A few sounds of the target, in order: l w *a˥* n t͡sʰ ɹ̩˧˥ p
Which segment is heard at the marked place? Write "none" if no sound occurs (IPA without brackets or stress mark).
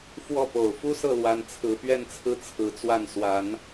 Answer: a˧˥